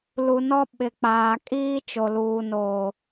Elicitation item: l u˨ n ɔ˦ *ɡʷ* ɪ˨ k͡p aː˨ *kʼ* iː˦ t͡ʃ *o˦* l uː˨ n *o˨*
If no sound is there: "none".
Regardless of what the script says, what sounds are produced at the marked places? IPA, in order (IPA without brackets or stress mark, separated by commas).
ɓ, kʼ, o˨, oː˨